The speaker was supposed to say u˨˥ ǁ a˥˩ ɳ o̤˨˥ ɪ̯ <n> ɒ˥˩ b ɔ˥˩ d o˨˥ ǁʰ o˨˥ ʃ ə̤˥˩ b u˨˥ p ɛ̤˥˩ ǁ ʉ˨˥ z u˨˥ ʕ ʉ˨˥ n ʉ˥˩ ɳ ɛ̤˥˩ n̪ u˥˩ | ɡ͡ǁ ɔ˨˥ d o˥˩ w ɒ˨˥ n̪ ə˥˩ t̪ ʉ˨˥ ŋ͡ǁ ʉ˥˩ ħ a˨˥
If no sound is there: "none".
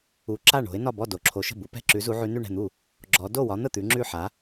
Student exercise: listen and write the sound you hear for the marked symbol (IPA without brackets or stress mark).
n